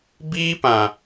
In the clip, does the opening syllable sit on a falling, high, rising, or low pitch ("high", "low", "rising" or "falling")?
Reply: high